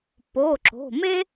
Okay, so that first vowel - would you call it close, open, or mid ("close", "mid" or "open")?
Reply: mid